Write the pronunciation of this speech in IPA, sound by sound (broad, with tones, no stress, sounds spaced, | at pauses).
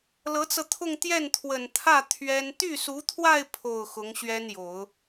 l ɤ˧˥ t͡s ɤ˧ t̪ʰ ʊ˥˧ ŋ t̪ j ɛ˥˩ n t̪ʰ w ə˨˩ n t̪ʰ ä˥˩ t̪ʰ ɥ ɛ˥ n t̪ y˥˩ s u˧˥ t̪ʰ w a˥˧ ɪ̯ pʰ o˥˩ ʊ̯ x ʊ˧˥ ŋ ɕ ɥ ɛ˥ n j o˨˩˦ ʊ̯